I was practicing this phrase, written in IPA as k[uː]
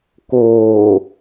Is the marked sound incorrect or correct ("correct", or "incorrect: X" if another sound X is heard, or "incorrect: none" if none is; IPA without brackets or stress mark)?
incorrect: oː